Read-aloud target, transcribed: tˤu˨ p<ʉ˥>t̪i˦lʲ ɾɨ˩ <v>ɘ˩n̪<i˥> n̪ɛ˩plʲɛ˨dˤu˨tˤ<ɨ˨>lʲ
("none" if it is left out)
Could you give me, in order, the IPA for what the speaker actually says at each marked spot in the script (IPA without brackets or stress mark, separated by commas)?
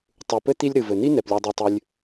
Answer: ɘ˥, v, i˥, ɨ˨